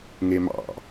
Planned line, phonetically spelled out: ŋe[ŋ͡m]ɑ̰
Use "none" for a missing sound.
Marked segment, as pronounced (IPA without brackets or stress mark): m